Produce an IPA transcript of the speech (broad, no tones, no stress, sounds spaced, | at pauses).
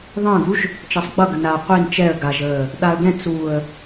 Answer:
ðˤ ə̃ː ɡ u ʒ | t͡ʃ ʌ sˤ ɡ͡b ʌ ɡ ə n a qʷ i n t͡ʃ ɛ ə̯ ɡ a ʒ əː | ɗ a ə̯ ɡ ɛ̃ t͡s uː ə̯